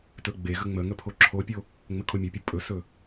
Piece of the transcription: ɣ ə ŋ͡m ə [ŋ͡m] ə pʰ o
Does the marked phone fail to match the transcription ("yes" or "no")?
yes